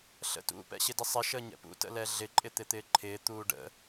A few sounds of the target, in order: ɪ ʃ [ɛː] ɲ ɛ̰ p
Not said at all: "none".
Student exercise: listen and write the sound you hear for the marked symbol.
əː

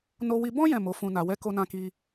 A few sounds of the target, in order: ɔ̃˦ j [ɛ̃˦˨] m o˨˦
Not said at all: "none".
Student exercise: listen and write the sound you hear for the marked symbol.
ɛ̃˦˨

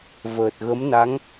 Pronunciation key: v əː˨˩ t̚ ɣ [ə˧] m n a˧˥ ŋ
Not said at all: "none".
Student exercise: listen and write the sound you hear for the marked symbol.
ə˧˥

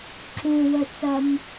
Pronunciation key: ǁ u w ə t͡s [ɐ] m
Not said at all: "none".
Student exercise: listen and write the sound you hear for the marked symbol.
ɐ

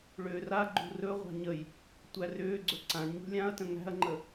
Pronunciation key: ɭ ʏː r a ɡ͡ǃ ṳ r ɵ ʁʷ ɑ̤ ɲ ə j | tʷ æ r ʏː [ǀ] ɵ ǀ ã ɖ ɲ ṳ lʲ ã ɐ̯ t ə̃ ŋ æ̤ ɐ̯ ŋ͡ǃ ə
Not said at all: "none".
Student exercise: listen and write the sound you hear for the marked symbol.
ɡ͡ǀ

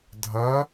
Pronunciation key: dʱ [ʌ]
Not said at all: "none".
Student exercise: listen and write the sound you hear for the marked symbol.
ʌ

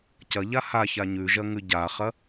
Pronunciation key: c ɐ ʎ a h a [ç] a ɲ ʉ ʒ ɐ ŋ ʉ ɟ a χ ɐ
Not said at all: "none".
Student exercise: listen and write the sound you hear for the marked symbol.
ç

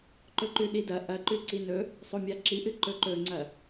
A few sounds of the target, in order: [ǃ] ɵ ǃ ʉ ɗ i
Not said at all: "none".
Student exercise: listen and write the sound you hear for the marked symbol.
ǃ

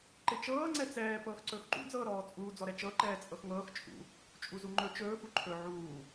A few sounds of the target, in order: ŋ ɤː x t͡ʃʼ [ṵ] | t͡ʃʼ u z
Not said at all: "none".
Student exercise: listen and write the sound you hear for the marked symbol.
ṵ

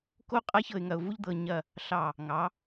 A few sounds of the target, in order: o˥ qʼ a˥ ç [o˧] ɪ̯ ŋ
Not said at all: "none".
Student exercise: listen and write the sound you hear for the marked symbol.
ɤ˧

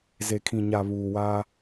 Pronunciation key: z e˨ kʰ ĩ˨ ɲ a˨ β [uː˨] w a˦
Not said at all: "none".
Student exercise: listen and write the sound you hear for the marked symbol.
uː˨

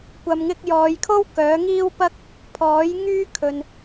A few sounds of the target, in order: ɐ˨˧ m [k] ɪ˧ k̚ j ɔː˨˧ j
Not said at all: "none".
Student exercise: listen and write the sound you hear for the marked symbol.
ŋ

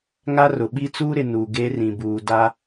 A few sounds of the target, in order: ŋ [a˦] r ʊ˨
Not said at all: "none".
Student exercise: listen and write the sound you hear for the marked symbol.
a˦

